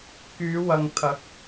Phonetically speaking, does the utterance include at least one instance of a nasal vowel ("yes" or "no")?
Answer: no